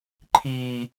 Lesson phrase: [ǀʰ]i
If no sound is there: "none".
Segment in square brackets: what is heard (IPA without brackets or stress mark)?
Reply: ǃʰ